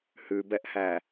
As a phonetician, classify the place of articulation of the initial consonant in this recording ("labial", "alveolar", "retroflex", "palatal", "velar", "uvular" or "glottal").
glottal